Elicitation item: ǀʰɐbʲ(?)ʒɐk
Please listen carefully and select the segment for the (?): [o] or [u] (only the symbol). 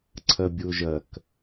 o